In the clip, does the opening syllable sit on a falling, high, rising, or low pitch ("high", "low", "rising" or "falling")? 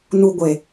high